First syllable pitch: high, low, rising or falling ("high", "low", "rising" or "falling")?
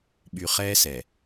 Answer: low